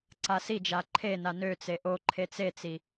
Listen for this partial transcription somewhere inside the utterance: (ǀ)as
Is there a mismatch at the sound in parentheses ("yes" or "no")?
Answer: no